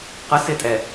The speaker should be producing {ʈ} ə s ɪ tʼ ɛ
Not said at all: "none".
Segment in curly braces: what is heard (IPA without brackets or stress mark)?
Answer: q